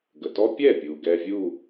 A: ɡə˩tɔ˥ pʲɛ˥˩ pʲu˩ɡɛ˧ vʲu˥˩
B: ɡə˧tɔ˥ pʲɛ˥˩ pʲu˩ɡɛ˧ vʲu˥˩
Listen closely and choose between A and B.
A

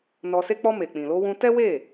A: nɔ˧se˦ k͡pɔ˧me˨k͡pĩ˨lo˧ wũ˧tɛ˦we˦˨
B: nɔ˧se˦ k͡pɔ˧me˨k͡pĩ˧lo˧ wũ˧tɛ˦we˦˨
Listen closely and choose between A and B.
A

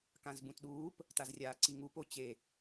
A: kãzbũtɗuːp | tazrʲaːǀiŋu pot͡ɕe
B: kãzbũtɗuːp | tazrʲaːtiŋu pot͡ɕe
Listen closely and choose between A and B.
A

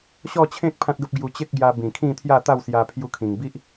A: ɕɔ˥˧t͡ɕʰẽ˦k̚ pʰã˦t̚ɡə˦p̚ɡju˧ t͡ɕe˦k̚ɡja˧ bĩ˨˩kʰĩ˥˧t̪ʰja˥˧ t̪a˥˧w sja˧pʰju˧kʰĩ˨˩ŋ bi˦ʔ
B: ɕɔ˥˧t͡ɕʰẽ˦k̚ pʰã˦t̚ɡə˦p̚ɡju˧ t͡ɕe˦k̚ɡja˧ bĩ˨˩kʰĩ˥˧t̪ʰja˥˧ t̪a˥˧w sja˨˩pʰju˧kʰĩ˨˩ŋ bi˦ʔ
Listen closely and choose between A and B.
A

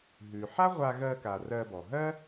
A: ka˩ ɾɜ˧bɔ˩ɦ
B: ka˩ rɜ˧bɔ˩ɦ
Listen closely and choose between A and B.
B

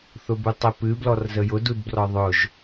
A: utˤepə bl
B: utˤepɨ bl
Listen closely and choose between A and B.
B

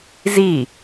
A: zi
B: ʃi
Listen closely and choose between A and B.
A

